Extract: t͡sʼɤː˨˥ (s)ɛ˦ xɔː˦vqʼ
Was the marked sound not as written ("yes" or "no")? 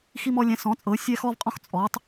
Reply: yes